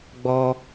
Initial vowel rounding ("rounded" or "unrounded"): rounded